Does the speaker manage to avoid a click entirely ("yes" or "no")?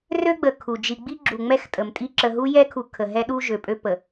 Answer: no